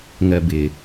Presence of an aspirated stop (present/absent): absent